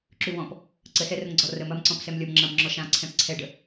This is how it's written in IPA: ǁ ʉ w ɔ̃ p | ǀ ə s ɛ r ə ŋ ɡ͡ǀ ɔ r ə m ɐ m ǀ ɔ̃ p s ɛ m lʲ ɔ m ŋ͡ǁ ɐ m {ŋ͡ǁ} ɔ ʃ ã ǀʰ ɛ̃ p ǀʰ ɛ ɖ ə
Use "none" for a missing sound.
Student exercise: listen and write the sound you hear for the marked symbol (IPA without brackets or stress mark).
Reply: ŋ͡ǁ